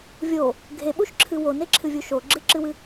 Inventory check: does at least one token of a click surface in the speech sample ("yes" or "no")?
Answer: yes